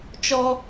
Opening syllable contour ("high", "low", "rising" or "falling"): high